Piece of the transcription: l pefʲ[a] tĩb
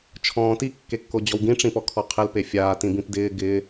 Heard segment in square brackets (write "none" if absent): aː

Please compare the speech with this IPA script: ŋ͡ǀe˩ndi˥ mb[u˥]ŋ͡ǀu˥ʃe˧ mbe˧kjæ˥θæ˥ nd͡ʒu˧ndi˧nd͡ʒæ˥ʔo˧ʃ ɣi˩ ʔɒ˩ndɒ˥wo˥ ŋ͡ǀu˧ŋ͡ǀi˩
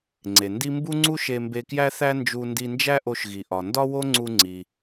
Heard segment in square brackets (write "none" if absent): u˥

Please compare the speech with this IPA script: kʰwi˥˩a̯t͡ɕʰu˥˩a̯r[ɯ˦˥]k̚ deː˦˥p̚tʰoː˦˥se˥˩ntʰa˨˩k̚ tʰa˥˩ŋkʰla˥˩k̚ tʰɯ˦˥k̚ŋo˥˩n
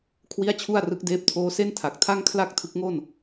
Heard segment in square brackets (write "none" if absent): ɯ˦˥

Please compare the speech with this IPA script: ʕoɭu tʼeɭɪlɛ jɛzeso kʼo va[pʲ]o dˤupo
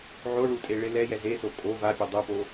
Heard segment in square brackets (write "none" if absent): pʲ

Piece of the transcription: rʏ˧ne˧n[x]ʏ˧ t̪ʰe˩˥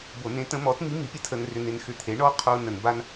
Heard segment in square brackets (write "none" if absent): x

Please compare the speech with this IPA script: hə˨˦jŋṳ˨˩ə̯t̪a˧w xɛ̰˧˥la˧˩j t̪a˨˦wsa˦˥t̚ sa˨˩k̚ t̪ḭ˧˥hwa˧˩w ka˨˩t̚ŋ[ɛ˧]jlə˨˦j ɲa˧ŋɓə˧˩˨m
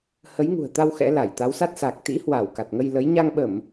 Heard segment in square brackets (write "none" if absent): ə˧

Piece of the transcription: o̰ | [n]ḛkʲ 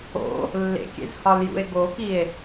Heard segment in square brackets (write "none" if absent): lː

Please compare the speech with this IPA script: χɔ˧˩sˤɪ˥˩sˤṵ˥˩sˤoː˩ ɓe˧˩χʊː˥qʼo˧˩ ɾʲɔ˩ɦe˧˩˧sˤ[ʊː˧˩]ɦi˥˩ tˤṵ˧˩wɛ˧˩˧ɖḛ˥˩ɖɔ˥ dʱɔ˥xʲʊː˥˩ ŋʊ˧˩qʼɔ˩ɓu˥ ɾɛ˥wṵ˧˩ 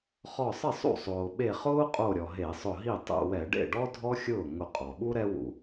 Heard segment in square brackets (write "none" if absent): ʊ˧˩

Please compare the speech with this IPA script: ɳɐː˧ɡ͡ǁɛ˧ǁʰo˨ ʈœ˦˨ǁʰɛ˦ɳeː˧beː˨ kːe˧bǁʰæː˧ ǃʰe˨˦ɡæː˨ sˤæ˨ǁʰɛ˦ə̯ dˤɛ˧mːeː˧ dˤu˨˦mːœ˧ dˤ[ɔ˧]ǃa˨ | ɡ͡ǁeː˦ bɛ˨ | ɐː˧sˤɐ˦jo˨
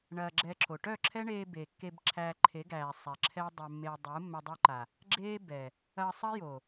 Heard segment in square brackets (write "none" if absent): o˧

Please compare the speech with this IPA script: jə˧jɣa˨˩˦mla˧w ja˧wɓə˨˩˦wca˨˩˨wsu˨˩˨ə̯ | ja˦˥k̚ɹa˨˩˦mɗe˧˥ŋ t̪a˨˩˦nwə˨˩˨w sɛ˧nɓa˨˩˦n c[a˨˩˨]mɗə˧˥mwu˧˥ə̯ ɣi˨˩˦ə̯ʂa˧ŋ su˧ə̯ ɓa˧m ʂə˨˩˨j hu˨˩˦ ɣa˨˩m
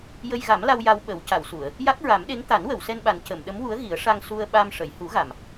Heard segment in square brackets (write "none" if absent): ə˨˩˨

